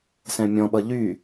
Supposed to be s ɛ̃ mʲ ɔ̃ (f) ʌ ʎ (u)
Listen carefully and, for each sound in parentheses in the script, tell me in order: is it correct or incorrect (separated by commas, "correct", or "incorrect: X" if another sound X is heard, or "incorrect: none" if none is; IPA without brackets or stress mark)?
incorrect: ɓ, incorrect: y